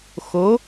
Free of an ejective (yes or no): yes